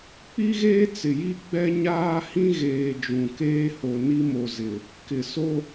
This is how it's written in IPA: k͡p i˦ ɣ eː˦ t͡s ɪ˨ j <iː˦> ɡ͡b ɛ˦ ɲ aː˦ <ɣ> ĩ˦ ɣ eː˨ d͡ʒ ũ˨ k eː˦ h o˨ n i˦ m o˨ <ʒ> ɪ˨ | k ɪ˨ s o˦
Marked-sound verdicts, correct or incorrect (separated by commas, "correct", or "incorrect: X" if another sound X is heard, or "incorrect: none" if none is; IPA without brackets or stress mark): incorrect: i˦, incorrect: h, incorrect: z